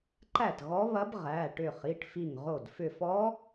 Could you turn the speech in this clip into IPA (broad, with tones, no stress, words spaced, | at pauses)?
ǃæ˥˩tɣɔ˧˥ βɐ˧˥b ʁæ˩˧˩ ʈʏ˧˩ χi˩˧˩ʈfi˧˩ŋʁo˧˩d fʏ˧˩fɔ˧˥